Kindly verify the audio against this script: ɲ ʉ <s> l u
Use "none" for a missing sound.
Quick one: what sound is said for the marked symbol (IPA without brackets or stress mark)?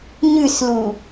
s